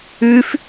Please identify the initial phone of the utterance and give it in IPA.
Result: ʉ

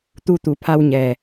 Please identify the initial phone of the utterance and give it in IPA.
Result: t̪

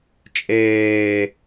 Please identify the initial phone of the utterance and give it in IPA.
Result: t͡ʃʼ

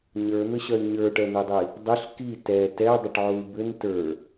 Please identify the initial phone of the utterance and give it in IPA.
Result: ɲ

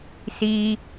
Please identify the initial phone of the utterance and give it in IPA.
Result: s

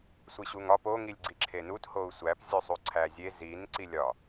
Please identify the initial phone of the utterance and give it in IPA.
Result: sʷ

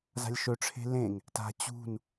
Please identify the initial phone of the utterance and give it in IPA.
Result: z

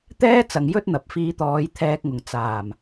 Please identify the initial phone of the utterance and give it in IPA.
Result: t̪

